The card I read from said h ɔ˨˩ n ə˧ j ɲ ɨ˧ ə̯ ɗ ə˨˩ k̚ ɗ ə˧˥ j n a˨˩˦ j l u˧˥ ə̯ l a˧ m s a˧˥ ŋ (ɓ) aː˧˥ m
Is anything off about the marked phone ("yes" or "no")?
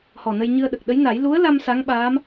no